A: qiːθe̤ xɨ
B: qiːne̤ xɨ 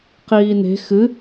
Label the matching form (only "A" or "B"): B